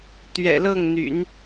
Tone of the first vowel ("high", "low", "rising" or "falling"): low